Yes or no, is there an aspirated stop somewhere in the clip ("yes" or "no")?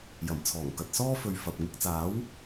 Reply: yes